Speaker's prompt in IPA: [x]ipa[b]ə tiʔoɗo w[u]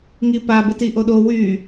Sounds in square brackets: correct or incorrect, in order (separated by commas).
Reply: incorrect, correct, incorrect